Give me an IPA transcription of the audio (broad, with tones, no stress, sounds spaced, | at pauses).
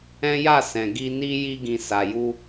ɛ̃˦ j a˦˨ s ɛ̃˨ ɡ i˧ n i˧ j i˧ ɡ ĩ˨ s a˨ j u˧